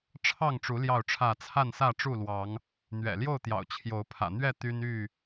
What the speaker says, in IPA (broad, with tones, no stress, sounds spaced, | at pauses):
ʈ͡ʂʰ ɑ˥˨ ŋ ʈ͡ʂ u˨˦ l j ɑ˥˨ ʊ̯ ʈ͡ʂʰ ä˥˨ t͡sʰ a˥˨ n s ä˥˨ ʈ͡ʂ u˥˨ l w ɑ˨˦ ŋ | n̪ ɥ ɛ̰˨˩ l j o˥˨ ʊ̯ t̪ j ɑ̰˨˩ ʊ̯ t͡ɕʰ j o˨˦ ʊ̯ pʰ ä̰˨˩ n̪ ɥ ɛ˥˨ t̪ y˦ n y˥˨